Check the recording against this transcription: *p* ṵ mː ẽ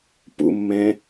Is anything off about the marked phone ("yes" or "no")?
no